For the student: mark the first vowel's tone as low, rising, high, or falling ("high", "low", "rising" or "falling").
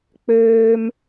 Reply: high